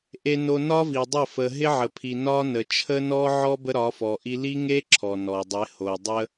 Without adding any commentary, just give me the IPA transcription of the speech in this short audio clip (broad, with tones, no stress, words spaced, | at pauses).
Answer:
ʔe˨no˨ nɒ˦vi˨dˤə˦˨ fə˨ ɦɪ˦ʕə˨pʰi˨ nɒ˦nə˨ t͡ʃʰə˦nɔ˦ʕɔ˦ bə˦ɾɒ˨˦fɔ˨ʔi˦ li˦ŋe˦ ǁʰɔ˨nɔ˨ dˤɪ˨˦ho˨ dˤə˦